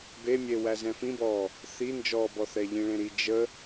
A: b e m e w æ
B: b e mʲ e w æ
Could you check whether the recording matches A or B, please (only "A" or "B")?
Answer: B